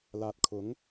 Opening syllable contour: low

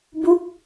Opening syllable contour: falling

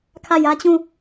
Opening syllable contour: falling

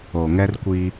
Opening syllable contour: low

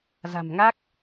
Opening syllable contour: low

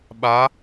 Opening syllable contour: rising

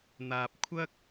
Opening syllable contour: low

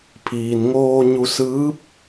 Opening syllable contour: low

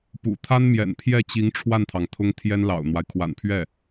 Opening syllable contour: low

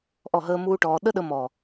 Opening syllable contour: falling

